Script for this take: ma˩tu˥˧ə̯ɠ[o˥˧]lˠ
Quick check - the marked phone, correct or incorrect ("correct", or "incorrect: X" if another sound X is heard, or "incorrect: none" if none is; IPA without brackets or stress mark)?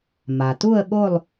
correct